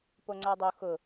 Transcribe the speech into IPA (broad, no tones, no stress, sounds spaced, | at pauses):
p o ŋ͡ǀ a dˤ o x ʊ